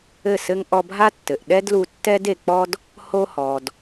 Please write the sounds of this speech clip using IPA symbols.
ɘ˦˨ s ɘ˦ ŋ ʔ ɔ˧ bʱ a˦ tː ɘ˨ ʔ ɗ ɛ˦ d l u˧ tː ɛ˦ d e˨ k͡p ɔ˦ d | h o˧ h ɔ˨ d

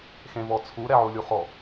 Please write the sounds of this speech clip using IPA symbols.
x ẽ v ɔ t͡sʰ u ɾ ɛ ʕ u lʲ u χ ɔ

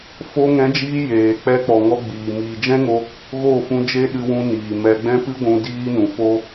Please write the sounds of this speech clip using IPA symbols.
f o˧ ŋ ɛ̃˨˦ d͡ʒ iː˧ j eː˨ k͡p ɛ˧ k͡p ɔ˨ ŋ ɔ˧ ɡ͡b iː˨ m iː˨ d͡ʒ ɛ̃˦ ŋ o˧ | ɣ o˦˨ f ũ˧ d͡ʒ e˦ ɗ ɨ˧ w ũ˧ n iː˨ m ɛ˧ ɡ͡b ɛ̃˦ p ɨ˦ ɡʷ ũ˧ d iː˦ n ũ˨ f o˦

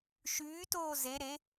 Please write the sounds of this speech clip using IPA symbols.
ʃ yː t oː z e ɾ e

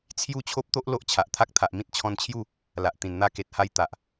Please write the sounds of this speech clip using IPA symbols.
t͡sʰ j u˥˧ t͡ɕʰ o˦ p̚ t̪ o˦ ʔ l o˦ ʔ t͡ɕʰ a˨ ʔ t̪ʰ a˦ k̚ t̪ʰ a˨ ʔ m ĩ˦ t̚ t͡ɕʰ ɔ̃˧ n t͡ɕʰ j u˥˧ | l a˨ ʔ t̪ ĩ˨˩ n n̪ a˧ k e˨ t̚ h a˧ j t̪ a˨ ʔ

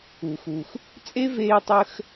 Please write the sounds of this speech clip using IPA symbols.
u˩ x u˩ x | t͡sʼ e˥ v eː˧ tˤ əː˧ x

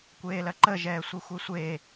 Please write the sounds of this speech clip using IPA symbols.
kʷ eː l ɐ ǃ ə ʒ ɛː sʷ e xʷ e sʷ eː

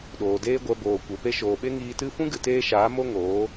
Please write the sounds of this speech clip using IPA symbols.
ɗ oː˨ d eː˦ ɡʷ ɛ˧ b oː˨ kʷ e˨ p e˧ ʃ oː˨ ɓ e˦ ŋ iː˧ t ɨ˦ f ũ˦ ɡ ɨ˨ t eː˧ ʃ aː˨˦ m o˦ ŋ oː˨˦

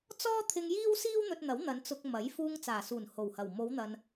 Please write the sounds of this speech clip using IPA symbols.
t͡s ɔː˥ t̪ʰ ɪ˧ ŋ j iː˥ w s iː˥ w n̪ ɵ˧ t̚ n̪ ɐ˨˥ w n̪ ɐ˨˧ n t͡s ʊ˧ k̚ m ɐ˨˥ j f uː˧ ŋ t͡s aː˨˩ s uː˨˩ n h o˨˩ w h ɐ˨˩ w m o˨˧ w n̪ ɐ˨ n

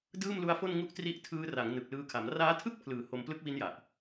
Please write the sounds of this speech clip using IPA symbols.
d ɯː˥˩ m l u˦˥ a̯ f o˥˩ n ŋ u˦˥ ʔ t r i˦˥ ʔ tʰ ɯː˦˥ r a˩˦ ŋ n ɯ˨˩ k̚ l ɯː˧ kʰ a˩˦ m r aː˦˥ tʰ ɯ˥˩ k̚ pʰ l ɯː˩˦ h o˧ m p l ɯ˦˥ k̚ w i˦˥ n j a˨˩ ʔ

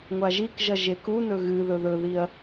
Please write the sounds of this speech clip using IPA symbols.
ŋʷ a ʒ i k ʒ ɐ ʒ e k u n ɵ ɣ ɨ ð ɵ ð ɵ ð i ɐ̯

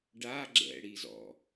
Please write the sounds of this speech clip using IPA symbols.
ɖ a ɡ͡ǁ ɛ̰ ɽ i z ɔ̰

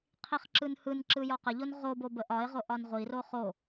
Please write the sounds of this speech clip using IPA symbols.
qʰ i χ ǁ ɯ n h ɯ n ǁ ɯ j ɒ q ə ʎ o n ʁ o b o b ə ʔ ɒ ɪ̯ ʁ o ʔ ɒ n ʁʷ i r o χ o

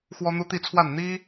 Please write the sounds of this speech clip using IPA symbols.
x w ɔ˦ n̪ u˦ t̪ i˥˨ t͡sʰ w a˥˨ n n̪ i˦

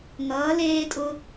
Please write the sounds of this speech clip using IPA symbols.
ŋ ʌː˧˥ l eː˥ tʼ ʊ˥

